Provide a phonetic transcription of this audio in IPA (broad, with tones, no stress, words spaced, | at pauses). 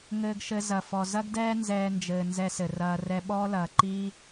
ŋɘː˧ɡʃɘ˧ zɐ˨fɔ˨ zɐ˦ɡdɛː˦ nzɛː˧nd͡ʒɘː˨ nzɛ˧sɘ˨rɐː˧ rɛ˧ɓɔː˦lɐː˨ ǃiː˦